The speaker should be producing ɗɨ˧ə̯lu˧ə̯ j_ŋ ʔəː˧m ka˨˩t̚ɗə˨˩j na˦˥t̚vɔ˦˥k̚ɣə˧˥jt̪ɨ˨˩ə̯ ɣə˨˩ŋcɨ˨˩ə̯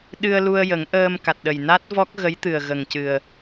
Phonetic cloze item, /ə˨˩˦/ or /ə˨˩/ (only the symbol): ə˨˩˦